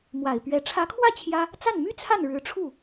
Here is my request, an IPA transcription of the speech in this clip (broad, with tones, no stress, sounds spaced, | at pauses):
m w a˨˩ ɪ̯ p ɥ ɛ˧˥ ʈ͡ʂʰ ä˧˥ kʰ w ä˥˩ t͡ɕʰ j ä˥ | t͡s a˥˩ n m y˥ t͡sʰ a˥˩ n ɻ ɻ̩˧˥ ʈ͡ʂʰ u˥˩